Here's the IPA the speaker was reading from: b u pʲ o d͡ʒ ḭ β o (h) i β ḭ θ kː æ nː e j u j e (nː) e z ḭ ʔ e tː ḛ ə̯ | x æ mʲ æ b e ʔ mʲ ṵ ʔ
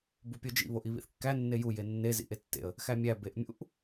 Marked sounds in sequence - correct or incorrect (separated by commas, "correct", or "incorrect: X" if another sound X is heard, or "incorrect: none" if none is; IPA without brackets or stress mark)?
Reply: incorrect: ʔ, correct